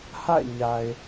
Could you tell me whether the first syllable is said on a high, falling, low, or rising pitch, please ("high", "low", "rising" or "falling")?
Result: falling